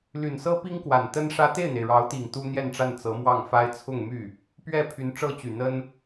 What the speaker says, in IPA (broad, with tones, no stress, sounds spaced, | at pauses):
l y˨˩ n s ɤ˥ p i˥ ŋ k w a˨˩ n t̪ ə˥ n ʂ ä˥ t̪ e˥˩ ɪ̯ n̪ e˩ ɪ̯ ɻ ɑ˧˥ ʊ̯ t̪ i˨˩ ŋ t̪ u˥ n̪ j ɛ˥˧ n ʈ͡ʂ a˥˩ n t͡s ɤ˧˥ m w ɑ˥˩ ŋ f a˥ ɪ̯ t͡sʰ ʊ˥˧ ŋ m y˥˩ | p ɥ ɛ˥˩ pʰ y˧˥ n ʈ͡ʂ ɤ˥ t͡ɕ y˨˩ n̪ ə˥ n